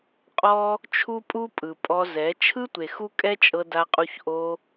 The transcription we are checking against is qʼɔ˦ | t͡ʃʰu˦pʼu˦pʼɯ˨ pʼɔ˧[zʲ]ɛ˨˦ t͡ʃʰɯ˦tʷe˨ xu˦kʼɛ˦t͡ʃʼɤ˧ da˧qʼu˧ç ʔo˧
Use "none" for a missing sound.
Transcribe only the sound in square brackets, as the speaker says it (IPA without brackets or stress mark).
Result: z